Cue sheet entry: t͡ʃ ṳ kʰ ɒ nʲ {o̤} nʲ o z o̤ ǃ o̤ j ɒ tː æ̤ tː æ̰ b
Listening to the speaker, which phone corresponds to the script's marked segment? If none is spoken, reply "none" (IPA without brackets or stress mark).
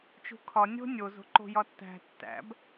o̤